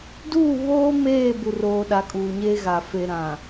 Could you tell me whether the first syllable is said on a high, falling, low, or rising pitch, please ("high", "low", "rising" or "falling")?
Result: falling